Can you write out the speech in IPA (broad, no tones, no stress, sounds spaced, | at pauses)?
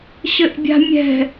ɕ ɘ ʔ bʲ a̤ mʲ ɛ̤